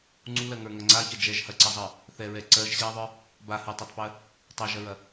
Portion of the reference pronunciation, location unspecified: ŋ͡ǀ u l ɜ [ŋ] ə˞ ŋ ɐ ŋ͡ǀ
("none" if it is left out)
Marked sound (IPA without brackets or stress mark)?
ŋ